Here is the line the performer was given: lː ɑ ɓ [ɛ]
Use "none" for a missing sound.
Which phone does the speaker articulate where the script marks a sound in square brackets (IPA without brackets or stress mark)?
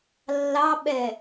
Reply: ɛ